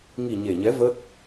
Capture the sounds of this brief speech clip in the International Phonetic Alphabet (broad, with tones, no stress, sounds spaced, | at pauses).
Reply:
ŋ i˨˩ ɲ e˨˩ ɲ ɛ˨˦ v ə˦˥ t̚